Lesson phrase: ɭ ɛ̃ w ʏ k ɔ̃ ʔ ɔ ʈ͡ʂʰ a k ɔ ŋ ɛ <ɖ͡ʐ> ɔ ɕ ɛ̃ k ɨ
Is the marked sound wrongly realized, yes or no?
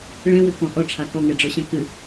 no